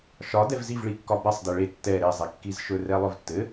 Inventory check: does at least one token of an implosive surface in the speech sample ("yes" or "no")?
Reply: no